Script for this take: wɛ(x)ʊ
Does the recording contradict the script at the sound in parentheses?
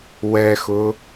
no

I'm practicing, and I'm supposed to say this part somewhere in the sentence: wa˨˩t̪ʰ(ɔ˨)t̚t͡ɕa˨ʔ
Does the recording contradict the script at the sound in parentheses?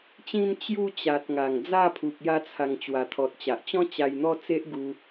no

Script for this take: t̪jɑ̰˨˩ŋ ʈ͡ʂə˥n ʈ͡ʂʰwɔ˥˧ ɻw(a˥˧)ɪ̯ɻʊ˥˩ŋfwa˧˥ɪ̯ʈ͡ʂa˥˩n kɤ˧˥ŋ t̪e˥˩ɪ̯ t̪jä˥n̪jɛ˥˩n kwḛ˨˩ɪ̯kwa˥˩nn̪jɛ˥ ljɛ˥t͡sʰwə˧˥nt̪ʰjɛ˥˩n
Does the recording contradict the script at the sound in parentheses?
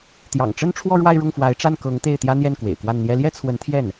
no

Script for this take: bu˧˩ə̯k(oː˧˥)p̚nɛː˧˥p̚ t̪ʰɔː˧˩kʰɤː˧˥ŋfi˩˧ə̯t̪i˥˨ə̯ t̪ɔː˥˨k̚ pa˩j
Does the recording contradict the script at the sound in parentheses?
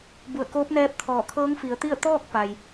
no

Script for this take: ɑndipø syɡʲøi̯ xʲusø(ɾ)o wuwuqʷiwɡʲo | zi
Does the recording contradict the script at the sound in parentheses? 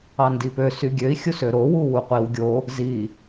no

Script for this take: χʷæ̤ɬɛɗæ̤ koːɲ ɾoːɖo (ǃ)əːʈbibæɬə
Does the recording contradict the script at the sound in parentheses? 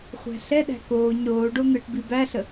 yes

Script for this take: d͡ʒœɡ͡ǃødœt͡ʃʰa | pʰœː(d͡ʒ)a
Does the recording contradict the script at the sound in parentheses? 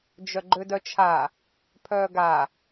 yes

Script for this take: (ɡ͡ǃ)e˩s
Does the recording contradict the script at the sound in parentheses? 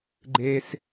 no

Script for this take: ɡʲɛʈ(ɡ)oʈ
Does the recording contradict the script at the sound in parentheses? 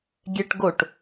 no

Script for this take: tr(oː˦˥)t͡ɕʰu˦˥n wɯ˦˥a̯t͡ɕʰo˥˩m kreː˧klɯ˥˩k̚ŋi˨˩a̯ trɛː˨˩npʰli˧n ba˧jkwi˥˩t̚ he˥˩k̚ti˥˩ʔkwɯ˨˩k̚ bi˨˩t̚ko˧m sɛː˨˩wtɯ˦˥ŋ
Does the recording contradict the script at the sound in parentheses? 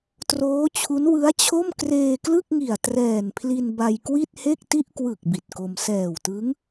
no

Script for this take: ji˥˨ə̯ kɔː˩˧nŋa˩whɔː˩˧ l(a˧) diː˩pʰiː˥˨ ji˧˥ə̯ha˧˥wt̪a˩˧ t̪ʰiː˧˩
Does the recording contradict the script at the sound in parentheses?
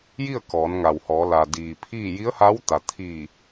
yes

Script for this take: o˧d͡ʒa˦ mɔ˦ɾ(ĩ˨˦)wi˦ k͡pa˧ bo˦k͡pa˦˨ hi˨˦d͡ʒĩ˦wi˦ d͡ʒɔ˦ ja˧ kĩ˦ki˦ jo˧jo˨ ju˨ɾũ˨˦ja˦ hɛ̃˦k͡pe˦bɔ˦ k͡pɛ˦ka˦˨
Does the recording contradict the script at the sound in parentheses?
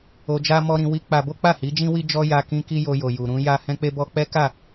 yes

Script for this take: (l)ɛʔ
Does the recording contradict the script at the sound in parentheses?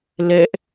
no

